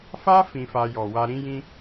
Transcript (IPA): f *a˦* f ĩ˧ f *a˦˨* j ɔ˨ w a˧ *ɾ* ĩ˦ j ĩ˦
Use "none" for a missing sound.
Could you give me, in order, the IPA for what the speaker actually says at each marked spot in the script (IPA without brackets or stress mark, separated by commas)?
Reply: a˦, a˧, ɾ